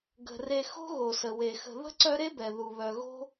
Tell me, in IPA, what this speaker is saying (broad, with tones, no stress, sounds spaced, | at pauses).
ɡ ə̤˩ r e˨ x o̤˦ ɣ o˩ s ə˩ w e˩ x ə̤˨ ð ə̤˥ ǀ œ˦ ɾ e˥ b ɛ˩ ð u˩ β œ˨ ɣ o̤˥